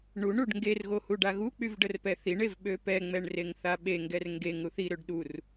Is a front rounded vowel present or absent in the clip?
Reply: present